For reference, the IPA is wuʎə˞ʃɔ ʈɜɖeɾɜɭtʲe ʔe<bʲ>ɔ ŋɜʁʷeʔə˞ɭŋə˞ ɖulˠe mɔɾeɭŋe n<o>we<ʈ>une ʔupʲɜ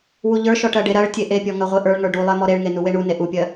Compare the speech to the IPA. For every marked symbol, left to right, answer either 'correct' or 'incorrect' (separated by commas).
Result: incorrect, incorrect, incorrect